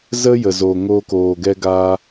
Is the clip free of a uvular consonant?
yes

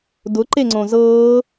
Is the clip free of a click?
no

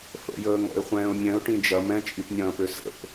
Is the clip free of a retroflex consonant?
no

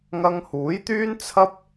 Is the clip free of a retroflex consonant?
yes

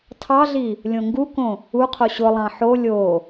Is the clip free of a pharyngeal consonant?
no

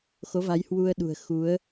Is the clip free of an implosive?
no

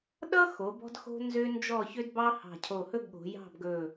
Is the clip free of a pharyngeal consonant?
yes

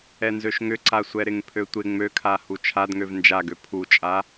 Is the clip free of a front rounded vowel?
no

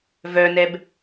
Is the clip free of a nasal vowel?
yes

